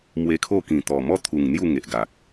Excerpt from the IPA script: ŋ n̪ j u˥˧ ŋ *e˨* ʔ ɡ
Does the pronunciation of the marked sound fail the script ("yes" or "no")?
no